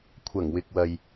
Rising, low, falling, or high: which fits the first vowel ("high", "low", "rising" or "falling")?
low